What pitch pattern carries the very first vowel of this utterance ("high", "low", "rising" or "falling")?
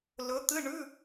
rising